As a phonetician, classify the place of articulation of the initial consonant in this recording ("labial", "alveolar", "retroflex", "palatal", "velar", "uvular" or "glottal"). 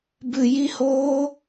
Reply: labial